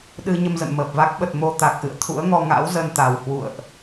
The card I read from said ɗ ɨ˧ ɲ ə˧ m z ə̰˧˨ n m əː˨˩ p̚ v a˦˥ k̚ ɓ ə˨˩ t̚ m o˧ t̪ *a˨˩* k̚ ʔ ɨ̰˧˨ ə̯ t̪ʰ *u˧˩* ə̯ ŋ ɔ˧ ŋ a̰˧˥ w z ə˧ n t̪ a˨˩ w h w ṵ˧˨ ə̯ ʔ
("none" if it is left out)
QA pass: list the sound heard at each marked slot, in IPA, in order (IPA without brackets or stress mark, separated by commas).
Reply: a˨˩, ṵ˧˥